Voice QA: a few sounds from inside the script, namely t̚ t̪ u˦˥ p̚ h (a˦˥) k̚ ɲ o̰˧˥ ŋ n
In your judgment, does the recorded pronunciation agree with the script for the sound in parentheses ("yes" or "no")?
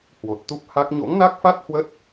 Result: yes